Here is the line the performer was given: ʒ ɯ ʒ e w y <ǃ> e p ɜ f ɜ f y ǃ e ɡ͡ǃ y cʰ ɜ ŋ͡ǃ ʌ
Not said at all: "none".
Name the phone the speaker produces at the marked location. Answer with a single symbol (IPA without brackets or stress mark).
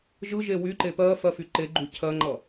ǃ